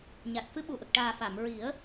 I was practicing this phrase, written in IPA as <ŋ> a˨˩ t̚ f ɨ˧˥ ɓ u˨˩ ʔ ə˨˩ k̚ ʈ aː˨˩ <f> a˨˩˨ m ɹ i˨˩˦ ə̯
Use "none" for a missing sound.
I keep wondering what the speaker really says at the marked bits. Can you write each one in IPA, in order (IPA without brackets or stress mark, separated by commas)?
ɲ, f